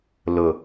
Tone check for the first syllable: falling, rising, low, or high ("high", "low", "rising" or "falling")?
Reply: low